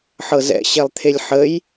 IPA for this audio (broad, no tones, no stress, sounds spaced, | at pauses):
ħ ɤ z ɛ̰ ɕ ɛ lˠ t̪ʰ e lʲ ħ ə j